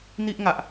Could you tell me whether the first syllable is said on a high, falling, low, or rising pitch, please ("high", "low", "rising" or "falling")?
high